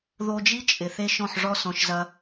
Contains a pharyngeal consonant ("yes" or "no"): yes